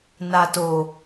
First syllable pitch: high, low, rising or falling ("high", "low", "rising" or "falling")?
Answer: low